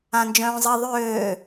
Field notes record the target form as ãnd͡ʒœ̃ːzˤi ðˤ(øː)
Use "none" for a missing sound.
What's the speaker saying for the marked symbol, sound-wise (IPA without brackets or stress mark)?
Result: øː